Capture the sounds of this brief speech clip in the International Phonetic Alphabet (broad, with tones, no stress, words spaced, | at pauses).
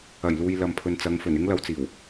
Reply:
ɐ˨˩jluː˨j lɐ˨mpʰɵ˨nt͡sɐ˨˧ŋfɵ˨˩n ɪ˥ŋlɐ˧wt͡siː˨˩w